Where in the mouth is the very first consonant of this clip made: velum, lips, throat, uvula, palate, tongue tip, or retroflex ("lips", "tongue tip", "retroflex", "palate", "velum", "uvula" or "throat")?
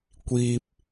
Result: velum